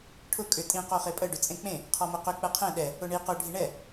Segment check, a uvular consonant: present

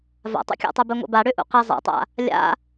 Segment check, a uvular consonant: present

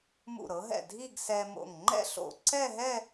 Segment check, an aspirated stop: absent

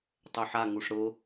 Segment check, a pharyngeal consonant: present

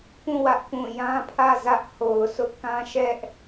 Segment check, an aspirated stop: present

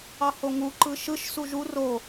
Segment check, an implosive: absent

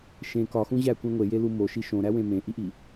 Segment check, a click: absent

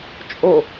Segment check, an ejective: present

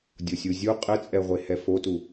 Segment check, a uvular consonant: present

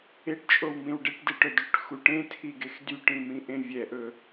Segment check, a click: absent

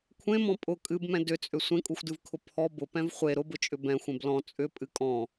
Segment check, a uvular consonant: present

